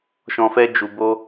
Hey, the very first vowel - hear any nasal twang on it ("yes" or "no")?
yes